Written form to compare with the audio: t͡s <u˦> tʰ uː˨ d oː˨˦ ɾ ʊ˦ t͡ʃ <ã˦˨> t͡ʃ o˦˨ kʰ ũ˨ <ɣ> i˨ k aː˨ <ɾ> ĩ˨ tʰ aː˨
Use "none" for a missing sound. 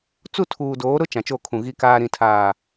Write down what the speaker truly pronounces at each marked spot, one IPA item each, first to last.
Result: u˦˨, ã˨, ɣ, ɾ

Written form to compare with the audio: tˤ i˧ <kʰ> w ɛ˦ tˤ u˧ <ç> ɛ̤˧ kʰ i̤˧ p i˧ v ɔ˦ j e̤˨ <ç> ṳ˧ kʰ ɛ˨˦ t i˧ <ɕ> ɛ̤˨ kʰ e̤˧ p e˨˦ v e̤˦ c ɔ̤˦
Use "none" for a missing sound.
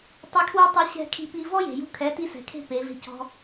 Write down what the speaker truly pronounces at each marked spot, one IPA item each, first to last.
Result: kʰ, ɕ, j, s

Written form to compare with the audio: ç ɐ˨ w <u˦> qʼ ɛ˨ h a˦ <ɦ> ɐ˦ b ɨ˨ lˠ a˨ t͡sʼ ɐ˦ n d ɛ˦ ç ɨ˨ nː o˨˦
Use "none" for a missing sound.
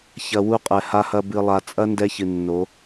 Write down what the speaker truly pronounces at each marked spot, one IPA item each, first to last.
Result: u˦, h

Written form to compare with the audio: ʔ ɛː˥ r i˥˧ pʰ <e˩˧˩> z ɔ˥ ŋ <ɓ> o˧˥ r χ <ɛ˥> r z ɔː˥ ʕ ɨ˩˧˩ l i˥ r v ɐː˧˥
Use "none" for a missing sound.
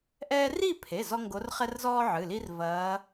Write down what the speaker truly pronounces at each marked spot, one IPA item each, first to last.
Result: e˩˧˩, ɡ, ɛ˥

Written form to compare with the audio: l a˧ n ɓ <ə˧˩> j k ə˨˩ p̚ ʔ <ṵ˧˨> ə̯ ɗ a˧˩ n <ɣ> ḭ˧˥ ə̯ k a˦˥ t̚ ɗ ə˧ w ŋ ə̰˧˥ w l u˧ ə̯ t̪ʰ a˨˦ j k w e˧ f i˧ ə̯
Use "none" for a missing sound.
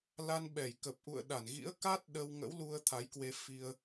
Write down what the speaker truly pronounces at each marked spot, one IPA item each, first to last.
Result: ɛ˧˩, ṵ˧˨, ɣ

